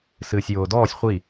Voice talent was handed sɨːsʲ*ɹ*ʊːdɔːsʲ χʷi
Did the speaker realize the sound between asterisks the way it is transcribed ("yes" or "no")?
no